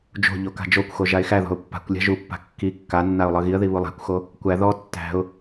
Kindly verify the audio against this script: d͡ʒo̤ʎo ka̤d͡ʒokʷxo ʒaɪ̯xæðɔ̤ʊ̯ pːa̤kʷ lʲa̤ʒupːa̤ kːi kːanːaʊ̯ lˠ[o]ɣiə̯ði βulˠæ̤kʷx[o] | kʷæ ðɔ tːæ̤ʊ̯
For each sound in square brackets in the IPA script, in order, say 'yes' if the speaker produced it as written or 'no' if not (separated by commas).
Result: no, yes